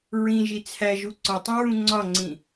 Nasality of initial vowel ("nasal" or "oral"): nasal